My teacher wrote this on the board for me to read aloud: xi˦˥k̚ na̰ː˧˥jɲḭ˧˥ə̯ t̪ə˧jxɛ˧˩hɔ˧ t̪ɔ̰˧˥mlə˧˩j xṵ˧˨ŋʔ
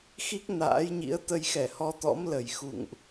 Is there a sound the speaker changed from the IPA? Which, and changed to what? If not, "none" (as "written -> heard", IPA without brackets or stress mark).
none